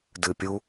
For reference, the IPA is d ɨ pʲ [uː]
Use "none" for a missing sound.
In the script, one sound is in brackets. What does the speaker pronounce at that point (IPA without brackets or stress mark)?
u